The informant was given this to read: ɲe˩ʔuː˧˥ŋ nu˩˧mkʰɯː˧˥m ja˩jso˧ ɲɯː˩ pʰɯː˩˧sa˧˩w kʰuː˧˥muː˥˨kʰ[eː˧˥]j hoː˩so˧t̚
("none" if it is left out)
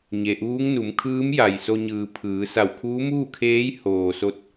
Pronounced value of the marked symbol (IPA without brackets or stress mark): eː˧˥